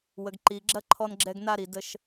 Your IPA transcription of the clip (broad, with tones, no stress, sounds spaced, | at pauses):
w ə˨ ɡ ǃ i˨ ɡ͡ǁ ɐ˦ ǃʰ ɔ˧ n ɡ͡ǁ ɛ˧ ɡ n a˧ ɾ i˨ d ə˧ ʃ